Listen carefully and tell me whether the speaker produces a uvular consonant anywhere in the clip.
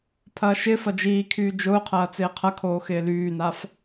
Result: yes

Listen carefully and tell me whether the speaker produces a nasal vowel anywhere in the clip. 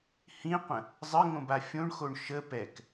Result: yes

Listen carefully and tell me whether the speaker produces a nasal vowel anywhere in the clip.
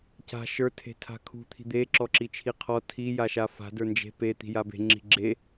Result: no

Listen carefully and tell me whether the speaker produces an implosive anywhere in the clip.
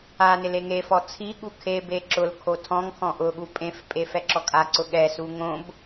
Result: yes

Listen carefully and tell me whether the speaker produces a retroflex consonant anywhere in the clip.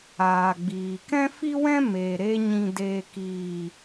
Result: no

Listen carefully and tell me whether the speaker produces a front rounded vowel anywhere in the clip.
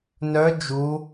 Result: yes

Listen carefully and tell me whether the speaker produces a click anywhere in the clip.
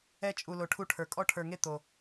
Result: no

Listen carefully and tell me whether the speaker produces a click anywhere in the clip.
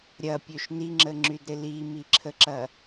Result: yes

